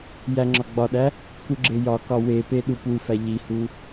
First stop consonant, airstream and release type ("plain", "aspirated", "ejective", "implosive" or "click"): click